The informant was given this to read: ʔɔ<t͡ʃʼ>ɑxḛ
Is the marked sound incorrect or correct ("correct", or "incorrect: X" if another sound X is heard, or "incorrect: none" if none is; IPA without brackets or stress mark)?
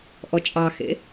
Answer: correct